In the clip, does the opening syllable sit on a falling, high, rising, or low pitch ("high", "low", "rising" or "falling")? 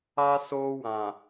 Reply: high